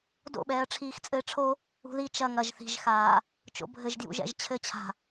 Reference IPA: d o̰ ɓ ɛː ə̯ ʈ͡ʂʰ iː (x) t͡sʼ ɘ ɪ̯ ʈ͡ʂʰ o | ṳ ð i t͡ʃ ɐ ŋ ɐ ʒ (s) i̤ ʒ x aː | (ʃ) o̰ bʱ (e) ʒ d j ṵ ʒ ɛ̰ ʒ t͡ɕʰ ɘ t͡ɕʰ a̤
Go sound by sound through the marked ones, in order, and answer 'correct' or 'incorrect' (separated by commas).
correct, incorrect, incorrect, incorrect